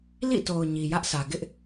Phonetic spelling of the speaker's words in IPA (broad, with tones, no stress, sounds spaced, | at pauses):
l ḭ˦˨ t o˨ ʊ̯ ɲ i˨ j ä˦ ʔ s ä˨ ɡ ɪ˦ ʔ